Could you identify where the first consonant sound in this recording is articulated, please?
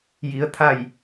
palatal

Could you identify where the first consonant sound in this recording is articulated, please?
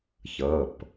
palatal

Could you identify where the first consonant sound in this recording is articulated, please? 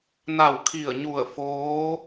alveolar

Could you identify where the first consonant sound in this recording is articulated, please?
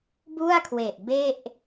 labial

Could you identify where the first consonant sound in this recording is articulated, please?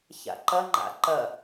palatal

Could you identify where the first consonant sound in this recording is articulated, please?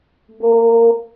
labial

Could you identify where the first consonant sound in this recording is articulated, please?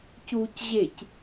palatal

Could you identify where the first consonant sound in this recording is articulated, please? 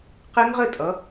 uvular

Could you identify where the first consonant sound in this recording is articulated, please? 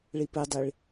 retroflex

